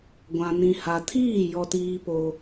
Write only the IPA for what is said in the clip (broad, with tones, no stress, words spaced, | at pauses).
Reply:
ɡʷã˨nĩ˨ha˨tʰiː˦˨ jɔ˦tiː˦po˦